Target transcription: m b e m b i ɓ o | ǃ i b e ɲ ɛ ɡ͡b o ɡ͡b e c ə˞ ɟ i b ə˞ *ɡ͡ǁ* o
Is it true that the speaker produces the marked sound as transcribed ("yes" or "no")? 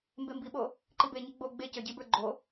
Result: no